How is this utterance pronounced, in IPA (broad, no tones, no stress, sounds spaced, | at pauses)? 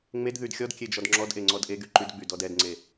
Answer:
ŋ͡m e d ð y d xʲ ɔ d kʲ e d͡ʒ ɔ d ŋ͡ǁ ɔ d ʔ e ŋ͡ǀ ɔ d ʔ e ɡ y ǃ y d ɡ͡b y d ɔ d ɛ d ŋ͡ǀ e